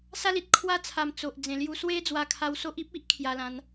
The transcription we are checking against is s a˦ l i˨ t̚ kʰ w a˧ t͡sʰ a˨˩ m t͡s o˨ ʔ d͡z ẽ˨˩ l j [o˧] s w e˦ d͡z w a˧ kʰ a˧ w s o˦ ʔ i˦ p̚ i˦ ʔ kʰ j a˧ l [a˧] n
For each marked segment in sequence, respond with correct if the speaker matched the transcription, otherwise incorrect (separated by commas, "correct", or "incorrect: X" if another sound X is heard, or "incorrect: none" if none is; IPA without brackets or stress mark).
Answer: incorrect: u˧, incorrect: ã˧